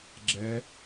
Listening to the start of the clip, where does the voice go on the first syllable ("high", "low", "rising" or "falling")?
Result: rising